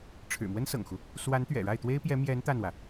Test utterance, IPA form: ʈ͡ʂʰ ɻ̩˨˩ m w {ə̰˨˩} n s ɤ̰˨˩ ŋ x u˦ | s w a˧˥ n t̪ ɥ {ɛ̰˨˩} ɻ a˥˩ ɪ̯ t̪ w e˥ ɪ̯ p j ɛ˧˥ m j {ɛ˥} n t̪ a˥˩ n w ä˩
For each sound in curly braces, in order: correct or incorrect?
incorrect: ə˥, correct, incorrect: ɛ˧˥

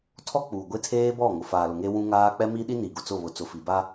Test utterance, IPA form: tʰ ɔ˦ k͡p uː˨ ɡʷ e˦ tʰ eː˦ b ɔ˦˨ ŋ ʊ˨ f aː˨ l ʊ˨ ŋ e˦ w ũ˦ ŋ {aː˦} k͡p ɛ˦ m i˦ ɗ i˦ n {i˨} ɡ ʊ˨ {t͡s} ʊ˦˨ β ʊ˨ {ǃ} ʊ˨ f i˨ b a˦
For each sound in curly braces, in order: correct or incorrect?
correct, correct, correct, incorrect: t͡s

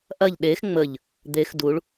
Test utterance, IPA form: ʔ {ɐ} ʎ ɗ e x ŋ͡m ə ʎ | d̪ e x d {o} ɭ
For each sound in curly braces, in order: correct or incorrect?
correct, incorrect: u

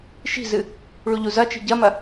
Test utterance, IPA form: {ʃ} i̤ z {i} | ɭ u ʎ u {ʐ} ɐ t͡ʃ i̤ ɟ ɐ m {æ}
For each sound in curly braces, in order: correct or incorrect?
correct, incorrect: ɨ, incorrect: z, incorrect: ɐ

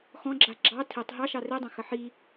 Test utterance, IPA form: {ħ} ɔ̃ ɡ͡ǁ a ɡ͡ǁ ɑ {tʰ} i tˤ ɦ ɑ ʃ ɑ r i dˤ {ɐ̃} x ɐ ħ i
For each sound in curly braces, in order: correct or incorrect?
incorrect: x, correct, correct

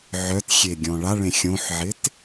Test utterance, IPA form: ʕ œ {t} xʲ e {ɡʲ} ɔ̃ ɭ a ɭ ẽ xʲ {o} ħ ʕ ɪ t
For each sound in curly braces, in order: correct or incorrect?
correct, correct, incorrect: õ

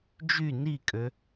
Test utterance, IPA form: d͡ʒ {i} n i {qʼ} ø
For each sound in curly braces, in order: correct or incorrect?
incorrect: y, incorrect: kʼ

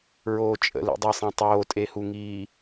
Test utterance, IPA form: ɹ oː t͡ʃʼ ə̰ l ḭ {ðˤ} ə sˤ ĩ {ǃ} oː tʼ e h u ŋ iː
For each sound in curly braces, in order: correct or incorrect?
incorrect: dˤ, incorrect: tˤ

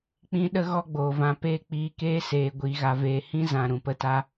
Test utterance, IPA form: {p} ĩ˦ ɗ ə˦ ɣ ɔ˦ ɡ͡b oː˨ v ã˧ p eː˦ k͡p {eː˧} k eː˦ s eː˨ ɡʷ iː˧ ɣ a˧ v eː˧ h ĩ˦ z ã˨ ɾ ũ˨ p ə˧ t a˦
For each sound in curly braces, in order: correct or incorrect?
incorrect: k͡p, incorrect: iː˧

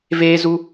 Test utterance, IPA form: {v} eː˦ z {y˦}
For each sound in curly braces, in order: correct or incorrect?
correct, incorrect: u˦

